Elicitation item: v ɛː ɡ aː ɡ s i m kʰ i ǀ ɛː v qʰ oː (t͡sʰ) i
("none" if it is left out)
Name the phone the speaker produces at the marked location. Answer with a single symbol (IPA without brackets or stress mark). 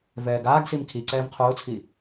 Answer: t͡sʰ